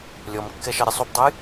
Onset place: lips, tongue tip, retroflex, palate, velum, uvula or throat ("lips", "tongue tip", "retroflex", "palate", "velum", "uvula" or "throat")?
tongue tip